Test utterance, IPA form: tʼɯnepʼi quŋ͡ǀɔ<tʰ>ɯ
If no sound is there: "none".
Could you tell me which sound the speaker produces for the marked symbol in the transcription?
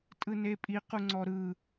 ɾ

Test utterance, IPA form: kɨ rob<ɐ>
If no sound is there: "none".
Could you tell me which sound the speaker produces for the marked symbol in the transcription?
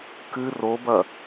ɐ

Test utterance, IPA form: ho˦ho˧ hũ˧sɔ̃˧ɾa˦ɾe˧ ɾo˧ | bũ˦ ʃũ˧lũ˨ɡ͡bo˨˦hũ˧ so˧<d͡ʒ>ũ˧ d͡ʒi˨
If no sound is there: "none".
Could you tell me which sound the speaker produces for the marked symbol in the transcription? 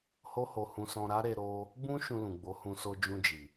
d͡ʒ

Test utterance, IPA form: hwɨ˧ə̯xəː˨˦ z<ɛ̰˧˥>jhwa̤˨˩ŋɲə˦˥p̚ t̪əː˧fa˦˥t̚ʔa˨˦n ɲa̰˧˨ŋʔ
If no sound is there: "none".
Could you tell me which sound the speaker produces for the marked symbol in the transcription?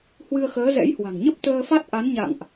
ɛ̰˧˥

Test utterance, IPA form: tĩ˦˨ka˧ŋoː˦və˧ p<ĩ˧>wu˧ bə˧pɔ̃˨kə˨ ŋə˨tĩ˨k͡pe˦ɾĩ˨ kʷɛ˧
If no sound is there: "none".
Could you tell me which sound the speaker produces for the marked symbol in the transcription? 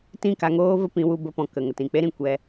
ĩ˧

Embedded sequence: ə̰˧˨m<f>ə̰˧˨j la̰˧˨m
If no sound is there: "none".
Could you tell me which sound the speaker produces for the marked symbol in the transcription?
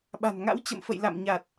f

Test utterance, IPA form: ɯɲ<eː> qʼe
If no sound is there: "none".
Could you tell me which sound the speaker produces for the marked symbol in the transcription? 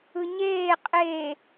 eː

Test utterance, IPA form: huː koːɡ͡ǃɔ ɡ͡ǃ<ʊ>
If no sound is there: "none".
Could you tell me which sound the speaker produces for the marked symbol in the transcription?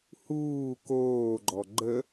ə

